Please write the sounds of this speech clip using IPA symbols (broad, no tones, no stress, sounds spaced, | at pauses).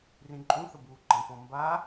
r ĩ ǃʼ ũ θ ə b uː ɡ͡ǃ ɐ̃ p ɔ̃ m b a